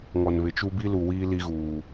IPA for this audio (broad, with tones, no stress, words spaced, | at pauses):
ŋɔ˨nβɪ˨ t͡ʃu˦ bi˦lu˨wiː˦ li˦ɣuː˨